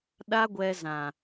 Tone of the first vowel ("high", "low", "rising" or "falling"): high